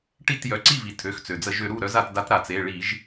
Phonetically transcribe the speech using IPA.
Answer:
ʈ i˥˩ t j œ˩ ǀ i˥˩ v i˩ tʰ ø˩˧˩ x t͡s ø˩ d͡z ə˧˩˧ ʒ ø˩˧ ɾ u˥˩ ɾ œ˧˥ z a˧˩˧ t d a˧˥ t ɾ a˩˧ t͡s e˩˧˩ ɭ i˧˩˧ ʒ

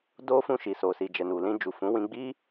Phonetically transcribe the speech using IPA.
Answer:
d o˧ f ũ˧ ʃ i˨ s o˨ s i˨ d͡ʒ ɛ˨ n u˨ l ĩ˧ d͡ʒ u˨ f ũ˨˦ w ĩ˧ ɡ͡b i˦

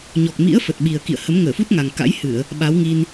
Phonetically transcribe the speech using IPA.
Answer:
ɲ ɔ˨˩ k̚ m ḭ˧˥ ə̯ f ə˨˩ t̚ ɓ i˨˩ ə̯ k ḭ˧˨ ə̯ h ə˨˦ m ŋ əː˧˩ f u˦˥ t̚ ŋ a˨˩ ŋ k a̰˧˥ j h ɨ˧˩˨ ə̯ | ɓ a˨˦ w ŋ i˧ n

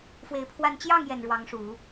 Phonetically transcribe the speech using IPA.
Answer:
f w e˧˥ ɪ̯ pʰ w a˥˧ n t͡ɕ j ɑ˥˩ ŋ j ɛ˨˩ n ɻ w ɑ˧˥ ŋ ʂ u˨˩˦

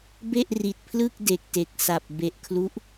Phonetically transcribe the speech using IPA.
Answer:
b e˥˩ ʔ r i˨˩ t̚ pʰ l ɯ˥˩ k̚ d e˨˩ k̚ t e˨˩ k̚ s a˨˩ p̚ b e˨˩ ʔ kʰ l u˦˥ ʔ

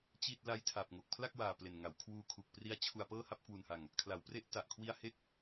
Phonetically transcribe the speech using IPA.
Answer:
t͡ɕ i˥˩ t̚ l a˦˥ j tʰ a˨˩ p̚ ŋ o˨˩ k̚ pʰ l a˥˩ k̚ w aː˨˩ p l e˨˩ n ŋ a˩˦ w kʰ w uː˧ kʰ u˨˩ k̚ p r i˦˥ a̯ t͡ɕʰ u˧ a̯ p ɤː˥˩ h a˥˩ p̚ k w u˧ n h a˧ ŋ | kʰ l a˩˦ w p r e˦˥ ʔ t a˨˩ ʔ kʰ w i˦˥ a̯ h e˥˩ k̚

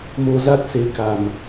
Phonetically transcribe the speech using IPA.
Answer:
m o˧ z a˦˥ t̚ s e˨˦ k a˨˩ m

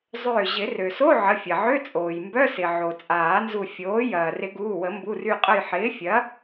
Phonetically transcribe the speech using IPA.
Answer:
zˤ ʏː˧˩ ʑ ɪ˨˩˦ r ø˩ s o˧˥˧ ʕ ə˩˧˩ fʲ ɐ˩ ʕ ʏ˧˥˧ t͡sʼ oː˩ j m b œ˧˥˧ s ɪ˩ ʕ o˩ t͡sʼ aː˨˩˦ n z u˧˩ fʲ oː˩˥ j ɐː˩ r ɪ˨˩˦ ɡ uː˩˧˩ w ə˨˩˦ m b u˩˧˩ r y˧˩ qʼ ə˧˩ j ħ ɪː˩˥ fʲ ɐ˩˥

